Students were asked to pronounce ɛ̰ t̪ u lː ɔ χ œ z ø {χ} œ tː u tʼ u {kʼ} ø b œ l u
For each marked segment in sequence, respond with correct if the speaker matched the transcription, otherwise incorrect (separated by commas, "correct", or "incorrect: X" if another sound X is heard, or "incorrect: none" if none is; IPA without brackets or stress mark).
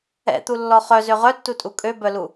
incorrect: ʁ, correct